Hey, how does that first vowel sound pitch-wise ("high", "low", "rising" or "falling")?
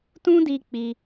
high